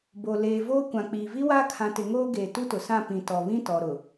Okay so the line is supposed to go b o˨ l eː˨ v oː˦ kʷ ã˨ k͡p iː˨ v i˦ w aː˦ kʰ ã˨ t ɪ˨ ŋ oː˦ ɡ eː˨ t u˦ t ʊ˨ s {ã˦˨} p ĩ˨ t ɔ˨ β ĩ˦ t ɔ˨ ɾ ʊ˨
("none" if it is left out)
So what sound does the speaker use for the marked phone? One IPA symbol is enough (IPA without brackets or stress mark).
ã˦˨